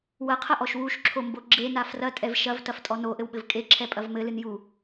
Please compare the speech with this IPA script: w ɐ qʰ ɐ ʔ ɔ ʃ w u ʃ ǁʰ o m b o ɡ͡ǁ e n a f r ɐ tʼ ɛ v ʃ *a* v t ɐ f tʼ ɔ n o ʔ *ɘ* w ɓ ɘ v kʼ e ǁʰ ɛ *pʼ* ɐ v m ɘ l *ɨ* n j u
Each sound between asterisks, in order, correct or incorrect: incorrect: ɐ, correct, correct, correct

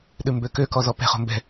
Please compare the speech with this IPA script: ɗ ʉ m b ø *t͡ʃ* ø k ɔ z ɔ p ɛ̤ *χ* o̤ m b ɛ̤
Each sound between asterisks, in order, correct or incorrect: incorrect: k, correct

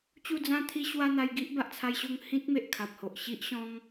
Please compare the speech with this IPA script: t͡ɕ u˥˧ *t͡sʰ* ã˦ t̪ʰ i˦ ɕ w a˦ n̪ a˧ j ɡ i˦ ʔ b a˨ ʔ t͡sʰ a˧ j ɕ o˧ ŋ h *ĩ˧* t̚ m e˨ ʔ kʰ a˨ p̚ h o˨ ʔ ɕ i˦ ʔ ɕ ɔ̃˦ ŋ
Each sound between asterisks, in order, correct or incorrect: incorrect: d͡z, incorrect: ĩ˦

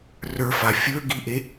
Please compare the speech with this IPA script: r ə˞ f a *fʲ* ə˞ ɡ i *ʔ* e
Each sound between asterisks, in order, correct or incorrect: correct, correct

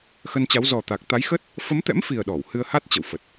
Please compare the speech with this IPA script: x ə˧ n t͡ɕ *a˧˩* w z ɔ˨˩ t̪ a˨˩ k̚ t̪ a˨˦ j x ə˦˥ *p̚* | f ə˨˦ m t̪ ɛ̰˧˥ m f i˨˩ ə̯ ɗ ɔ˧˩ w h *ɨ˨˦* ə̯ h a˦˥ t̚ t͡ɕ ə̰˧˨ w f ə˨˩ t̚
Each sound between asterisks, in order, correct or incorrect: incorrect: a˨˦, incorrect: t̚, incorrect: ɨ˧

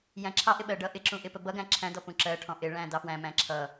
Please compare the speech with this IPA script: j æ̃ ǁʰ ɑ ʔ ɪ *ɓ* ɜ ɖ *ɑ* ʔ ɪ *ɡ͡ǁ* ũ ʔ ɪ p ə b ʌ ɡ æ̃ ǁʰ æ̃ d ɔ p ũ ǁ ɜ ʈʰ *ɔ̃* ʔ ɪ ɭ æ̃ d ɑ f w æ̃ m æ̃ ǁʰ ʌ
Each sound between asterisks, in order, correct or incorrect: correct, incorrect: ʌ, incorrect: ǁ, correct

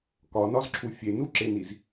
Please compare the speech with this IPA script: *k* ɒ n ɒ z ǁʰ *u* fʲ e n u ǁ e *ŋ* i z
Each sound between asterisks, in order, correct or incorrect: correct, correct, incorrect: n

